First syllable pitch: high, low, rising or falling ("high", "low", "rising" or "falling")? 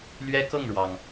high